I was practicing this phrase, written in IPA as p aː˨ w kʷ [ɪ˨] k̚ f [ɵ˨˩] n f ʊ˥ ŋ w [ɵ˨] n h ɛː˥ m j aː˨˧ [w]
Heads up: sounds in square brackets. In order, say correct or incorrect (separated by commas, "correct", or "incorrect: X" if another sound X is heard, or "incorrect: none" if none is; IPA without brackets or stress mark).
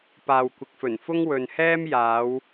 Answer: correct, correct, correct, correct